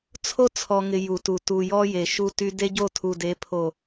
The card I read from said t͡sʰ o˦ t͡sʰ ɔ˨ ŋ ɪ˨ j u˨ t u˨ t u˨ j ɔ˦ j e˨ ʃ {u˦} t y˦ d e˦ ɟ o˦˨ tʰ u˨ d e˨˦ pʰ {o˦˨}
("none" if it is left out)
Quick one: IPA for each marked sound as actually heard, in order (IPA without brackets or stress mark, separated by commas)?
u˦, o˨